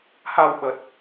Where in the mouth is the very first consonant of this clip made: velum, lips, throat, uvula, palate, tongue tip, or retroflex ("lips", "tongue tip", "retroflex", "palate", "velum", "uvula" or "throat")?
throat